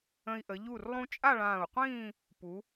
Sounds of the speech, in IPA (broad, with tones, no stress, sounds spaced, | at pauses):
ə̃˧ i̯ ʔ ə˩˧ ʎ u˧˩ r lˠ ũ˧ t͡ʃʼ a˥˧ ɭ ãː˧˩ u̯ qʷ ĩː˥˧ | p u˩˧